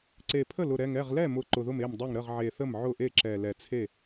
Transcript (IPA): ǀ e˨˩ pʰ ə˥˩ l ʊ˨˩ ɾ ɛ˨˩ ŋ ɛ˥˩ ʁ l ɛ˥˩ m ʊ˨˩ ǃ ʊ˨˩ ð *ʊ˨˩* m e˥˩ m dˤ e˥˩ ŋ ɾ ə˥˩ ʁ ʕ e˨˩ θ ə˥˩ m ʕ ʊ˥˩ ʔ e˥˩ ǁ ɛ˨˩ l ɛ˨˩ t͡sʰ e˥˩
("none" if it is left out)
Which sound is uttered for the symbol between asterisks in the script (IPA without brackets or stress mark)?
ʊ˥˩